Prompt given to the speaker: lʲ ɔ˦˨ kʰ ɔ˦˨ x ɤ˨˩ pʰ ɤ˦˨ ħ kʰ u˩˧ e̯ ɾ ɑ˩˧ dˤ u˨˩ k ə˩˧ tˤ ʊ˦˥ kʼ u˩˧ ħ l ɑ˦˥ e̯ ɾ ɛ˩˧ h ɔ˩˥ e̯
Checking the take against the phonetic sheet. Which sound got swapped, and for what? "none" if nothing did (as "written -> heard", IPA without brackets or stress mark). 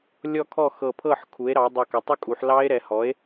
none